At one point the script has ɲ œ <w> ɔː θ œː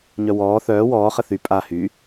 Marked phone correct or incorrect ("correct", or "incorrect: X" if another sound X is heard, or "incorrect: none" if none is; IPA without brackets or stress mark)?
correct